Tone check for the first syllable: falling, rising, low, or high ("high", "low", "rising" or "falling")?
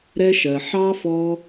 high